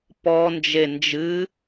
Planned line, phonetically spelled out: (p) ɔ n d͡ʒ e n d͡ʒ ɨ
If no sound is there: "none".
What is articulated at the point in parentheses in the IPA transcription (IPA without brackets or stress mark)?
p